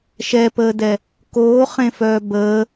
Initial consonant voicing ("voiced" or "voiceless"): voiceless